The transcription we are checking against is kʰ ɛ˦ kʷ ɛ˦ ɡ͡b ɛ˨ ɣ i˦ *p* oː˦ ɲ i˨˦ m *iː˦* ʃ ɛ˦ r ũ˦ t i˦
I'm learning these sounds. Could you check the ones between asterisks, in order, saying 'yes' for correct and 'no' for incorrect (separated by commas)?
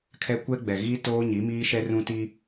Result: no, yes